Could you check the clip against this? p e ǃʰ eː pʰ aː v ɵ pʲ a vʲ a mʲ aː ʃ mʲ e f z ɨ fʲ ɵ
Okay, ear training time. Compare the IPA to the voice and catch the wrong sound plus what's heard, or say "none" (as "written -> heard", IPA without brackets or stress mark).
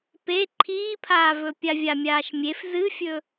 eː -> iː